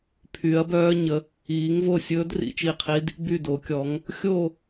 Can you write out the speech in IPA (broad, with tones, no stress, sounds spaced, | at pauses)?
pʰ y˨˦ ɐ̯ b œː˦˥ ɲ ə˨˦ | iː˨˦ ŋ v o˦˨ sʲ ɵː˦˥ d r ḭ˨˦ t͡ʃ i˦˨ qʰ i˦˥ d | b y˦˨ d o˨˦ kʲ ɔ˨˦ ŋ | xʲ o˦˨